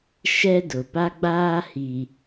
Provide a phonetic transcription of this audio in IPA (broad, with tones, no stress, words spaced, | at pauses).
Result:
ʃɛ˦dʊ˨pa˦ɡ͡baː˦ hi˨